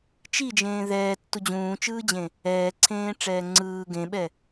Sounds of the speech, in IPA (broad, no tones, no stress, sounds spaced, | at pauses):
t͡ʃ i d͡ʒ ẽː ð ɛː tː u d͡ʑ ũː t͡ʃ ɯː d͡ʑ ẽ | ɛː ǀʰ ẽː ʈ͡ʂ ɛː ŋ͡ǀ ɯː ɡ ẽ ɓ ɛ